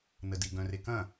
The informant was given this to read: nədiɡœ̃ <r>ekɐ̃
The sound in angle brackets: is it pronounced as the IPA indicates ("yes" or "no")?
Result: yes